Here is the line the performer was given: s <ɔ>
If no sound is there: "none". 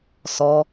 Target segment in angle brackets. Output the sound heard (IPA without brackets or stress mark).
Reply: ɔ